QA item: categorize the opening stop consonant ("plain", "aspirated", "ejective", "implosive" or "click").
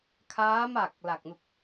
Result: aspirated